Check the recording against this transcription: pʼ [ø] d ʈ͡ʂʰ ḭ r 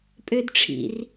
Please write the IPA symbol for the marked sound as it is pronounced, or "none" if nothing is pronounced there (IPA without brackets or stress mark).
ø